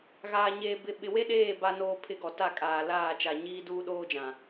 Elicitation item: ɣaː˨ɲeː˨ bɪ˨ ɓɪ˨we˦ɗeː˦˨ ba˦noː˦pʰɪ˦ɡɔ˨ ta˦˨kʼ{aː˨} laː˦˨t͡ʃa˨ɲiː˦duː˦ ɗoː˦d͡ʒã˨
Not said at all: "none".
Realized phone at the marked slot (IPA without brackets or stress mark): aː˨